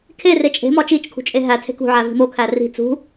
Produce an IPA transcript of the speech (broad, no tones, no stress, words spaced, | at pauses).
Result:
kʰere t͡ʃʼe̤mɒ t͡ʃit͡ʃkʰṳt͡ʃʼe ɦætʰe̤ kṳʕævi̤ mokʰæ ri̤ t͡sṳ